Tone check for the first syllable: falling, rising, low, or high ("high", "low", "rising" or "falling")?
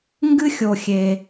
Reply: high